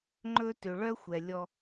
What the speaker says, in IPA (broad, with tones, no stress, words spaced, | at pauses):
ŋ͡ǃɵ˦tø˨ ɭœ˦xʷɛ˨ lʲɔ˦